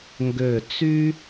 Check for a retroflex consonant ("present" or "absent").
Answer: absent